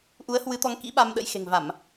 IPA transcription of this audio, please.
ʔu˨˦ə̯ hwɨ˨˦t̪ɔ˨˦ŋkḭ˧˥ ɓa˧mɗə̰˧˥jxe̤˨˩ŋ va˧˩˨m

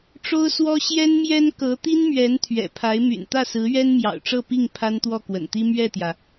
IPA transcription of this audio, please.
ʈ͡ʂo˥ʊ̯swɔ˥ ɕjɛ˥nmjɛ˥n kɤ˧˥ t̪i˥nmɥɛ˧˥n t̪ʰɥɛ̰˨˩pʰa˧˥ɪ̯my̰˨˩n t̪ä˥˩sɹ̩˧˥ ɥɛ˥nmjɑ̰˨˩ʊ̯ʈ͡ʂɤ˥˧pi˥˩ŋ pʰa˥nt̪wɔ˥˩kwə̰˨˩nt̪i˥ mɥɛ˥˩t̪jä˩

